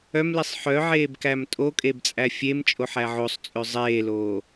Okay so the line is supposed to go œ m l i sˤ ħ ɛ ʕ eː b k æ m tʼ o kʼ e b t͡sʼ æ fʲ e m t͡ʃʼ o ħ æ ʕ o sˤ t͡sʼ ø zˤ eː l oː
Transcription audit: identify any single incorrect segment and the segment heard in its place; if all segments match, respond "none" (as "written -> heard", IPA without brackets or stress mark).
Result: ɛ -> œ